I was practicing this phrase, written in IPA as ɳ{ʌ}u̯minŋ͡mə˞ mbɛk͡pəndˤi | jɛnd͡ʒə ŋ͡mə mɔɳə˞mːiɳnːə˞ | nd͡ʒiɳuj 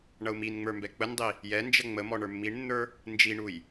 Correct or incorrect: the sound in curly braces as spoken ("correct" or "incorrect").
correct